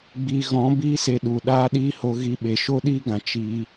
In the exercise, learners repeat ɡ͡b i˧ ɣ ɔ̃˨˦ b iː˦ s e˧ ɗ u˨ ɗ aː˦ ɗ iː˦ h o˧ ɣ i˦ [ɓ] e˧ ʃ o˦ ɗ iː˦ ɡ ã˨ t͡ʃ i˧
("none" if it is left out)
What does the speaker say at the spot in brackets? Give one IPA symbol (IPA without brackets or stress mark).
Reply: ɓ